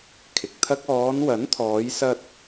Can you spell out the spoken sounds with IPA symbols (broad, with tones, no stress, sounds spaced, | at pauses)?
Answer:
kʰ ɪ˨ k̚ t̪ʰ ɐ˥ k̚ ɔː˨˧ n w ɐ˨˥ n t̪ʰ ɔː˨˧ j s ɐ˧ t̚